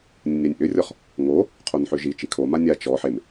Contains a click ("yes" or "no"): no